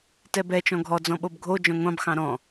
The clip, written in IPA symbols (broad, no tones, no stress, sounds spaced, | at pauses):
t ɛ b ɛ t͡ʃ ɔ̃ ɡʱ ɔ d͡z ɔ̃ ɓ o b ɡʱ o d͡ʒ ɔ̃ ŋʷ ɑ̃ b x ɑ̃ ɾ ɔ̃